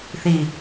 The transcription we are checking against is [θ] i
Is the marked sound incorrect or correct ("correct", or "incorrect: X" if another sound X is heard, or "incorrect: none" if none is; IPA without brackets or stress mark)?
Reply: correct